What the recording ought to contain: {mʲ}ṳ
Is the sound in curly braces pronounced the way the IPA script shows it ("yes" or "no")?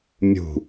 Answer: yes